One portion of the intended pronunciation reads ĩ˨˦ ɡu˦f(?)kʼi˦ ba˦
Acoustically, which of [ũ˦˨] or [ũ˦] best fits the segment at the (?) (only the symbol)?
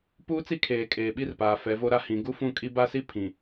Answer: ũ˦˨